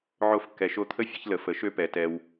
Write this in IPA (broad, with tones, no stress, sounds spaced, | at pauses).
ʕ o˧ f kː ɛ˨ ʃ o˧ t̪ʰ ə˦ fʲ ə˦ ç l ə˨ f ə˨ ʃ ø˦ p ɛ˨ t ɛ˧ w